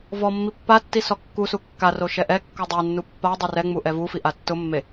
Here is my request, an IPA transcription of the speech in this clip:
v ɔ mː i pː a tː i s ɔ kː u s u kː a r o ʃ ɛ ʔ ɛ kː o dˤ ɛ nː u pː a dˤ o r ɛ ŋ͡m u ʔ ɛ v u f i ʔ a tː ʊ mː e

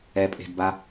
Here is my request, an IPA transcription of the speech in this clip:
ɛ pʼ e̤ d b a

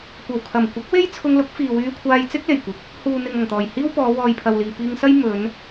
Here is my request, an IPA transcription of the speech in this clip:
kʷ ɐ˨˩ w kʰ ɐ˨˩ m kʷ ɪ˨˥ k̚ w e˥ j t͡sʰ ʊ˧ ŋ l ʊ˨˥ k̚ f iː˨ w yː˧ kʷʰ aː˧ j t͡s ɪ˥ k̚ l e˨˩ j kʷ ɪ˨˥ k̚ | h uː˨ n̪ ɪ˨ ŋ ɐ˨˩ ŋ t̪ ɔː˨˩ j h iː˥ w p ɔː˨˧ w ɔː˨ j pʰ ɐ˨ w l iː˨ p iː˧ ŋ s ɐ˥ j m ɵ˨˧ n

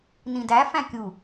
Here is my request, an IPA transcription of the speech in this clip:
n ĩ d æ f æ̃ kʲ u

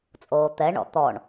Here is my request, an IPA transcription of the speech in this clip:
t͡sʼ oː t̪ ɛ ɳ ɔ̰ t̪ ɔ ɳ

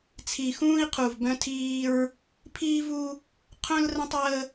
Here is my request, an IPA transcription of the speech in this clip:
t͡sʰ i˨ x ũː˦ i̯ qʰ u˨ v b œ̃˦ tʰ iː˦ ɹ | pʰ iː˦ v u˦ | qʰ œ̃˦ l r ə̃˦ tˤ əː˦

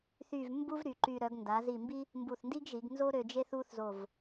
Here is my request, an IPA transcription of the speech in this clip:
θ y˥˧ v m b u˥ v ɾ y˩˧ ǃ y˧ ɾ œ˩˧ ɡ n d a˩˧ z i˧˩ m b i˥ | m b u˧˩ θ n d i˥ ɡ ʒ i˩˧ ɡ n z o˥ ɾ ø˧ d͡ʒ e˥ θ u˥ θ z o˧˩ v

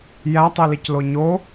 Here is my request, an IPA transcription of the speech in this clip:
j æ tˤ i l i c l o ɲ o

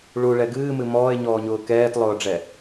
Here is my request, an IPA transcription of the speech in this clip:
ɭ u ɭ ɛ ɡ ɨː m ɨ m ɔː e̯ ɲ ɔː ɲ ʊː k ɛː t lˠ ʊː ɖ͡ʐ ɛ

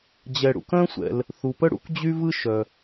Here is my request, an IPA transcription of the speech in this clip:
d͡ʑ ɛ˩ ɽ ṵ˩ k œ̃˥ sʷ ɛ̰˩ l | θ u˩ p ə˥ ɽ ṵ˥ k d͡ʑ y˥ v ɯ˥ ʃ œ˩

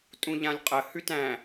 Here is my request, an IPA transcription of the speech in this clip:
tʼ ũ ʎ ã lʲ qʼ ə h ʉ t æ̃

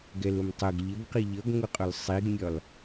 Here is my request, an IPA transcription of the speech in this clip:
ɡ ɛ l ʊ m tˤ ə ɡ ʎ ə ɡ q i ʎ ʌ ɡ ŋ ʊ qʼ ʊ l sˤ i ɡ mʲ ɒ l

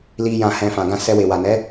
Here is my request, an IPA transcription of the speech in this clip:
l i˧ j ã˨ h ɛ̃˨ f ã˨ ɡ ã˧ s ɛ˧ w e˨ w a˨ n ɛ˨˦

